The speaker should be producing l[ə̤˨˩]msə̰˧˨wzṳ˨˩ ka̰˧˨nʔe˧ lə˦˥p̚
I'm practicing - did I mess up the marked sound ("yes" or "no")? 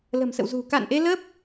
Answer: no